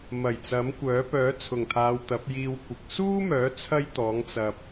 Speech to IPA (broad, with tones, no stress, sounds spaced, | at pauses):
m ɐ˨˩ j t͡s ɐ˨˥ m kʷ œː˨˥ p œː˨˥ t͡sʰ ʊ˨˩ ŋ t̪ʰ aː˨ w t̪ ɐ˨˥ p̚ j iː˧ w kʷ ɪ˨ k̚ s uː˥ m œː˨˥ t͡sʰ ɐ˥ j t̪ ɔː˨˥ ŋ t͡s ɐ˧ p̚